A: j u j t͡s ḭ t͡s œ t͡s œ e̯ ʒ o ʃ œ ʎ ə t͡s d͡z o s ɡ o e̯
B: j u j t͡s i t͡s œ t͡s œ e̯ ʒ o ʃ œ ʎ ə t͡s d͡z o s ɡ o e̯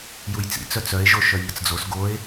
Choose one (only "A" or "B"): A